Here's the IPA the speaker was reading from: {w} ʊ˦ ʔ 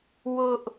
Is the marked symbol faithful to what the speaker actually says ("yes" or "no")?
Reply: yes